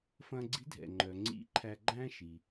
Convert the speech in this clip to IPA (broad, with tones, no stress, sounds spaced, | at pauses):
f ɐ̃ː˧ ɡ͡ǀ i̤˧˥ dʱ ɛ̰˩ ŋ͡ǃ œ˩ ŋ͡ǀ ḭ˧˥ ǃʰ æ˧ ɡ͡ǃ æ̃˥ ʃ i˩